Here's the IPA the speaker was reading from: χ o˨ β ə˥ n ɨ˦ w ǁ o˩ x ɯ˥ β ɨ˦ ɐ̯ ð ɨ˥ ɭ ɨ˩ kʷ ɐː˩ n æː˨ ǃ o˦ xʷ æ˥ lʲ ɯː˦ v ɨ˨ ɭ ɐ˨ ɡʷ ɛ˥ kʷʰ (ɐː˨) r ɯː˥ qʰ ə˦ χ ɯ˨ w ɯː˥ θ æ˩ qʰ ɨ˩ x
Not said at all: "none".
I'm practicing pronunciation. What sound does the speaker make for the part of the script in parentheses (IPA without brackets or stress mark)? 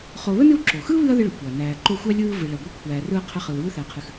æː˨